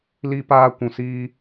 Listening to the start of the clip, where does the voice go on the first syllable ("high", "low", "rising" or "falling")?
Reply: high